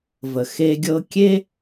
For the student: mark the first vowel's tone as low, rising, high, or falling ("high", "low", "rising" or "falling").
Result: low